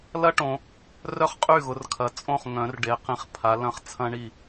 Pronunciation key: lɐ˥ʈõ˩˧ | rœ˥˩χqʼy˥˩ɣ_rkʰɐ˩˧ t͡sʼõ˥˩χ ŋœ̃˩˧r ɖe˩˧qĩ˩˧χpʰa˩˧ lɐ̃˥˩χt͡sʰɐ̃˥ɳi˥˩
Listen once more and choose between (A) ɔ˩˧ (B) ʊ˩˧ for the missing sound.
B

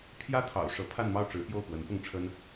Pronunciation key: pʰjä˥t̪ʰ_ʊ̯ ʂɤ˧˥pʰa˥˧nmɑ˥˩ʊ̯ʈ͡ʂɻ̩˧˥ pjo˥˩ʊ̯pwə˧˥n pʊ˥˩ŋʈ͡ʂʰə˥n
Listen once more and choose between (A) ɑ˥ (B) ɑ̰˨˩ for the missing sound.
B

